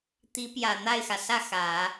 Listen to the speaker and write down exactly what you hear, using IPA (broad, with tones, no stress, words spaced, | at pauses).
t̪i˧˥pjä˨˩ n̪a˥˩ɪ̯xä˩sä˥˩ xä˨˩˦